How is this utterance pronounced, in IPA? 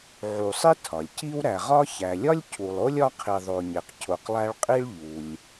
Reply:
ʕ u˨ sˤ i˥ tʰ ɒ˩ lʲ c i˥ w ɾ æ˨ ʁ ɒ˥ ç æ˩ lʲ ɒ˥ lʲ cʰ u˨ lˠ o˥ lʲ ɒ˦ qʰ i˨ ðˤ o˨ ɲ e˩ q cʰ o˨ q lˠ æ˦ ɭ qʼ i˥ ɭ ʎ u˩ lʲ

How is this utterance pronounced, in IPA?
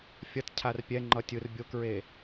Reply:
fʲ ʌ t cʰ a r pʲ ɛ ŋ͡ǃ ʌ tʲ ɯ r bʲ o k ɹ e

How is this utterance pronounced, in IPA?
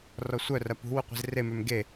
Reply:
r ɔ sʷ œ r ɐ p ṳ w u qʷ i̤ z r e m ø m ɡ e

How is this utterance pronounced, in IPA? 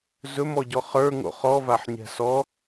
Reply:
z ɵ m ɔ ɟ ɔ χ ə˞ ŋ o̰ χ ɔ v a ħ ɲ ɛ̤ s ɔ

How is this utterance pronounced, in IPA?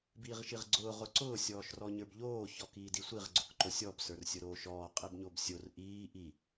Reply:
b iː ʁ ʃ i ʁ ɡ͡ǀ ʊː ʁ ʊ ǀ ʊː sʲ ɔː ʃ r ɔ ɲ ə˞ b ʎ oː ç ɔ k iː d i sʷ i ʁ ɡ͡ǀ ʊ k ǃ o sʲ ɔ b s ə˞ r sʲ ʊ ɾ oː ʃ ɔː qʼ i b ɲ o b sʲ o r ʔ iː ʔ i

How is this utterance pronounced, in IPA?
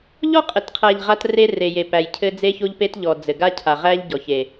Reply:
ʎ ɔ˦ qʼ ɘ˨ t qʰ æ˨ ʎ ʁ a˦ t r e˦ r e˨ j e˨ p æ˨ j cʰ ɘ˦ d͡z e˦ ç o˦ ʎ p e˦ t ʎ ɔ˨ d͡z ɘ˨ ɡ a˦ cʰ a˨ ʁ æ˦ ʎ ɟ ɔ˨ ç e˨

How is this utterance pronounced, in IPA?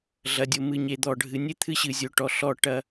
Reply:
ɮ ɐ˨ dʲ o˨ m ɨ˨ ɲ e˨ d̪ ɔ˨ ɖʱ ɨ˨˦ nʲ ɨ˦ t̪ʰ ɨ˦ ɕ ɨ˨ zʲ o˨ ʈ ɔ˨ ɬ ɔ˦˨ ʈ ɐ˦

